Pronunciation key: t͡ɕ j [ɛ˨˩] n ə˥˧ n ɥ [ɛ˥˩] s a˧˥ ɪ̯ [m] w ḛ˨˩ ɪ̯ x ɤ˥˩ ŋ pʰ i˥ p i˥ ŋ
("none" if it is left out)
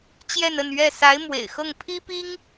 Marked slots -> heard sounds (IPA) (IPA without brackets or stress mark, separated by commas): ɛ˥˧, ɛ˥˩, m